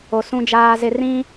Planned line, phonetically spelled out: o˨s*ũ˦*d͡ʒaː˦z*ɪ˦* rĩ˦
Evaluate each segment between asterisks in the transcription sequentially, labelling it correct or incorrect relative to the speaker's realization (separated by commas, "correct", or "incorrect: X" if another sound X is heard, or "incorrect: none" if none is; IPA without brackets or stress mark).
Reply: correct, correct